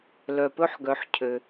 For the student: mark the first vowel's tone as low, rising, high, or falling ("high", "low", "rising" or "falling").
low